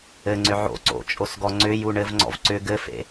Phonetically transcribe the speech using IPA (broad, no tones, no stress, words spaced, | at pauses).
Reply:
ɘŋ͡ǀʏ ʕo̰ ǀo̰t͡ʃʼosɡɔ ŋ͡ǀʏju ɳɘvŋ͡ǀɔ̰v ǀʏ ɡɘfḛ